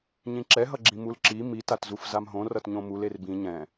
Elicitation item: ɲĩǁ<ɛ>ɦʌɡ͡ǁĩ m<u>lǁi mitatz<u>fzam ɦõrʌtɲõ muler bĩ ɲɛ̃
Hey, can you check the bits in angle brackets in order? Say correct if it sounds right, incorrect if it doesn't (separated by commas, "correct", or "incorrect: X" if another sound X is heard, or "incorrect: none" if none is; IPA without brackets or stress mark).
correct, correct, correct